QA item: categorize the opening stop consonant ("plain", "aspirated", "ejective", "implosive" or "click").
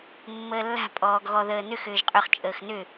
ejective